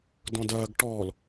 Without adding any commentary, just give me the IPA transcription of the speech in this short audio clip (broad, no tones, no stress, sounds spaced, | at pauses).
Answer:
d ɔ̃ d ɐː ɡ ʈ ɔː l